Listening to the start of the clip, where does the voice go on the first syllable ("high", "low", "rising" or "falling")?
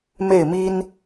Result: falling